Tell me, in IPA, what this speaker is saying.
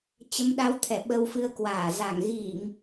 t͡ɕə˨˦mɗa˨˦wt̪ʰɛ˧˩ ɓə˧wfɨ˧ə̯kwaː˧˩ za˧˩ŋ ɣi˧˩˨ŋ

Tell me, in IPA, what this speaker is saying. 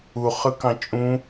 u χɯkɑ̃t͡ʃʼũ

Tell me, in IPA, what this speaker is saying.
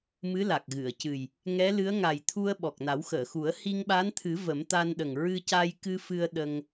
mɨ˧˥la˨˩k̚ɣɨ˨˩˨ə̯cɨ˨˩j | ŋɛ˧˥lɨ˧˥ə̯ ŋa˨˩jt̪ʰu˧ə̯ ɓɔ˨˩k̚na˨˩˦wxəː˨˩˨xu˨˩˦ə̯ hi˧ŋɓa˧˥nt̪ʰɨ˨˩˦ və˨˩˦mt̪a˧nɗə˨˩ŋ ɹɨ˧ca˧jkɨ˧ fɨ˧ə̯ ɗə˧ŋ

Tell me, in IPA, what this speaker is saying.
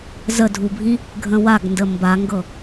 zədʱubʱĩ | ɡʱə̃waɡndə mbaŋɡɤ

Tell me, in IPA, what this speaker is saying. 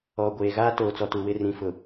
ɔ˨ ɡʷeː˨ɣaː˦ toː˨t͡sɔ˨tu˨wɪ˦˨ rĩ˨fʊ˨

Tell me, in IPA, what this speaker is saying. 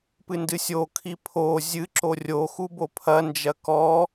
pɨndɨsʲokʰi pʰo zʲɨ ǁorʲoxu bopʰɐnd͡ʒɐ kɔ

